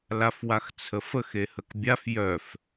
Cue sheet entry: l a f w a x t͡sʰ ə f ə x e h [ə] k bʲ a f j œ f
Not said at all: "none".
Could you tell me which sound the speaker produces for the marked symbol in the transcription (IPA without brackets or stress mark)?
ə